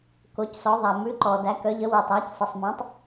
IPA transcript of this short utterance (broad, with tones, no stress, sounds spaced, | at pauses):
k o˨˦ c s ɔ˨˦ ðˤ æ˨ m ʉ˨˦ ǃ ɔ˨ d æ˨˦ k œ˨˦ ʎ ə˨˦ w ʉ˨ tˤ æ˨˦ c sˤ ə˨ sˤ m ɔ̃˨˦ tˤ